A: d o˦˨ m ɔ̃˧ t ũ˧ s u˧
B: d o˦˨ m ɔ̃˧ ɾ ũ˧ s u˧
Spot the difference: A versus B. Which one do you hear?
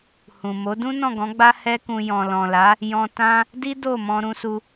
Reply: B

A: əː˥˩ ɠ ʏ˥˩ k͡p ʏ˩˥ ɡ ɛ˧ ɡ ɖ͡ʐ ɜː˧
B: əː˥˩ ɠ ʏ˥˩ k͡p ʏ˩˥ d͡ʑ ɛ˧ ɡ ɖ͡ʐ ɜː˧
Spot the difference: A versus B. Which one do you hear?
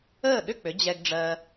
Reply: B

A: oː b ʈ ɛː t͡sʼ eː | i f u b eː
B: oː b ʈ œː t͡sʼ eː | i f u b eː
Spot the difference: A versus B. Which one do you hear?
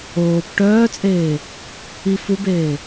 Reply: B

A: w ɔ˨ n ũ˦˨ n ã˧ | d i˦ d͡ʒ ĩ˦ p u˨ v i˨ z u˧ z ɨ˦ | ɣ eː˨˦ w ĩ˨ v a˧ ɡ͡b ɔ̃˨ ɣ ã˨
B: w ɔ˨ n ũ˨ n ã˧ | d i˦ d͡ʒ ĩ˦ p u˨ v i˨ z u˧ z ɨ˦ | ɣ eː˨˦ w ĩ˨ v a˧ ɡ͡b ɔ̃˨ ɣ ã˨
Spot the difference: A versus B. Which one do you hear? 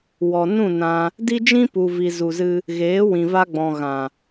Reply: A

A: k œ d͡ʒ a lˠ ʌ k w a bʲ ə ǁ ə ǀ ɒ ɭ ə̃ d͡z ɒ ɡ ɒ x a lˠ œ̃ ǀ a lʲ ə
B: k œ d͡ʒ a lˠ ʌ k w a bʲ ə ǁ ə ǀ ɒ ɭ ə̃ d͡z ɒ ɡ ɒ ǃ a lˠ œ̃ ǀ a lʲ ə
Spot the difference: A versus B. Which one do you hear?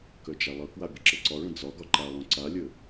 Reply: B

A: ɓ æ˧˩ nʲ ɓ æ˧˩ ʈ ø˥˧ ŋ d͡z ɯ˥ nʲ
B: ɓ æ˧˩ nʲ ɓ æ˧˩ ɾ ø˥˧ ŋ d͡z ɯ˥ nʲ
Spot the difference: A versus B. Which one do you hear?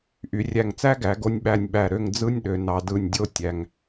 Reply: B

